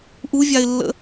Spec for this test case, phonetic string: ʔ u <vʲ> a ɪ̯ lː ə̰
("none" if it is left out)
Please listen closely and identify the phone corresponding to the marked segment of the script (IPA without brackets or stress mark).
vʲ